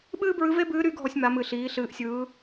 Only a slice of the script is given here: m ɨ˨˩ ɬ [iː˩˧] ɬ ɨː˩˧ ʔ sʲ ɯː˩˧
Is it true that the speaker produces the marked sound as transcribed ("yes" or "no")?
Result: yes